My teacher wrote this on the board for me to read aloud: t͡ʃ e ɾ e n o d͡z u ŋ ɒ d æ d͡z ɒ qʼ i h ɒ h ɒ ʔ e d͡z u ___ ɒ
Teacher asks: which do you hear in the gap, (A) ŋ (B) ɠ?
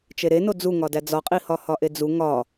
A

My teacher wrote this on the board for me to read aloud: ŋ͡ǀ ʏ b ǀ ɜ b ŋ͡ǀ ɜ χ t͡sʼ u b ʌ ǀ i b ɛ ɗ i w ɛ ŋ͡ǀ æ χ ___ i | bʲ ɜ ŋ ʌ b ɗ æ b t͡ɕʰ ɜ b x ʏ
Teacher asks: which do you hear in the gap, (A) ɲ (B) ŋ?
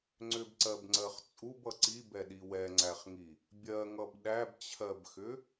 B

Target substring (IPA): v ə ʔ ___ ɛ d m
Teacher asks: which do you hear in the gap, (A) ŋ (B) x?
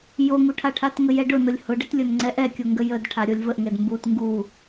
A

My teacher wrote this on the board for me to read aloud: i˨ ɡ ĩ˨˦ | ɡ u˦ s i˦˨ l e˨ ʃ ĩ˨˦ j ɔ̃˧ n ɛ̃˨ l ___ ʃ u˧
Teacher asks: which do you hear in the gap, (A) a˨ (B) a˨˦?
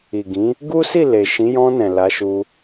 B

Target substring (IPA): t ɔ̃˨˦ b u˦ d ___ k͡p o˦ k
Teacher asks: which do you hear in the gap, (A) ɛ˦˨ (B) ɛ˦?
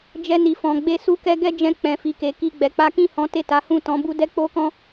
B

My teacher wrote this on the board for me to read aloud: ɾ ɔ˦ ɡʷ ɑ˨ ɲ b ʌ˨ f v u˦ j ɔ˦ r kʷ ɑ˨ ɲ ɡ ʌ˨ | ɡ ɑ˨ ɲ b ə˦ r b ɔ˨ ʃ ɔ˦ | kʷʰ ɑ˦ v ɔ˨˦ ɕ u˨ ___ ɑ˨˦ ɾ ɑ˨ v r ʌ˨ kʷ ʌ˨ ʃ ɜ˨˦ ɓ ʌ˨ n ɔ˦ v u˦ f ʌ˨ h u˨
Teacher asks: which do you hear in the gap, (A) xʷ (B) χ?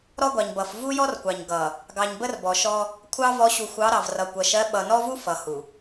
A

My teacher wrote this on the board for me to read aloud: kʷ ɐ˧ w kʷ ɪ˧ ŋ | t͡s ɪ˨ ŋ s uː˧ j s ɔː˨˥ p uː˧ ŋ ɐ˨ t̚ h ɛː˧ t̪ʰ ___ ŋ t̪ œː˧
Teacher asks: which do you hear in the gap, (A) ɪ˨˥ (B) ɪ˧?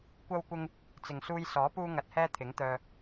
A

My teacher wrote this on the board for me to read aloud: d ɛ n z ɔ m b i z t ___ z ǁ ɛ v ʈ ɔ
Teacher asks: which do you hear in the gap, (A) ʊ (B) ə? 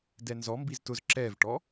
A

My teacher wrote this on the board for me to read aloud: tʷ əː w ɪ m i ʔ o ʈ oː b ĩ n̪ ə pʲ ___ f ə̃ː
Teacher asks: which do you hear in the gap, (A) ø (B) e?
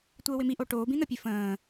A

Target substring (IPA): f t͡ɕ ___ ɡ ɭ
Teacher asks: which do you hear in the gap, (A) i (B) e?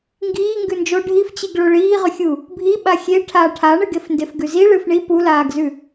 A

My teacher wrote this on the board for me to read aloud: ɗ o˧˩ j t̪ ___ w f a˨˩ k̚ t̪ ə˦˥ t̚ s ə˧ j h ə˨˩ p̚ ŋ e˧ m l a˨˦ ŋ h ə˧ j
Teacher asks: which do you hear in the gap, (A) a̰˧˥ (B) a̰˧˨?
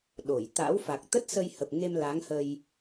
A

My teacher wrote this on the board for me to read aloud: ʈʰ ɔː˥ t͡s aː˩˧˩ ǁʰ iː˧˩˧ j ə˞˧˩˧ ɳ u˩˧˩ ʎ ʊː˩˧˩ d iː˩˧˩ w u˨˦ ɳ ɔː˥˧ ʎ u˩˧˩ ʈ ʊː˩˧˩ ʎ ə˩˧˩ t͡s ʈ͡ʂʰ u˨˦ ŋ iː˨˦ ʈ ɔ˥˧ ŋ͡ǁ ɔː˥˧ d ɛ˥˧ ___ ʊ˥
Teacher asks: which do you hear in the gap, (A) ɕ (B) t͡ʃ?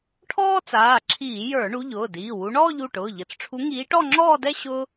A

